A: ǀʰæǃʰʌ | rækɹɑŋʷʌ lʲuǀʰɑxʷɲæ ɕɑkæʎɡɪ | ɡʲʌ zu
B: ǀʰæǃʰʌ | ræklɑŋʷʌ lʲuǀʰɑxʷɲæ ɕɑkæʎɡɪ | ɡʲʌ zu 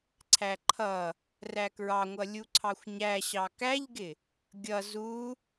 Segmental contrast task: A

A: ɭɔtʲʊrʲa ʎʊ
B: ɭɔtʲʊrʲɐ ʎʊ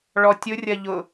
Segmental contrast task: B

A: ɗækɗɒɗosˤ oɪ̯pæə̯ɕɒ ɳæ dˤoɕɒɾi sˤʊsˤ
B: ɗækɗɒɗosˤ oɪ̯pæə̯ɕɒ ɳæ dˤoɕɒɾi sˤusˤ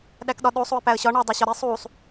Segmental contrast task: B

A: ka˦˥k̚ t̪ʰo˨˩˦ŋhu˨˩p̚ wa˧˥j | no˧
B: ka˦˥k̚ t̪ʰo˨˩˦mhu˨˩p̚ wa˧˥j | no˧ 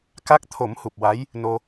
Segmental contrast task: B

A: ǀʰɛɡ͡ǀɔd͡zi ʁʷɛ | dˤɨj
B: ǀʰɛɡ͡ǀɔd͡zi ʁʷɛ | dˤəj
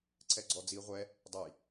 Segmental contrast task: B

